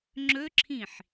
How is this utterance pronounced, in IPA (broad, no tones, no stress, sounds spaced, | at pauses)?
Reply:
ŋ͡ǁ ɵ ǁʰ ĩ ħ